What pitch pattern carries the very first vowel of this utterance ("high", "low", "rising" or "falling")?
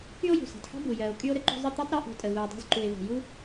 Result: high